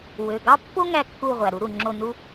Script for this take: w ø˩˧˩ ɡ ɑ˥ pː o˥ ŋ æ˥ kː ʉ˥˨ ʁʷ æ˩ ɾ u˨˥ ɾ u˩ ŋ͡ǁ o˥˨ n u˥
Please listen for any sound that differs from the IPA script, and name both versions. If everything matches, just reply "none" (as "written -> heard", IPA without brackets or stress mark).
ʉ˥˨ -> u˥˨